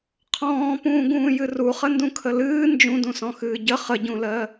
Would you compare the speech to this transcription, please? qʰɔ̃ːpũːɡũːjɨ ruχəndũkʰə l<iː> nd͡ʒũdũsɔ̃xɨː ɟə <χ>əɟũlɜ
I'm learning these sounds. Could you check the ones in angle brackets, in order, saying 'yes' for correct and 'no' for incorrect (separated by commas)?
no, yes